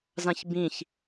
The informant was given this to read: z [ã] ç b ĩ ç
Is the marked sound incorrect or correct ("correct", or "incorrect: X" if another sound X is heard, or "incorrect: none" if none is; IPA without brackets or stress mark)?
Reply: correct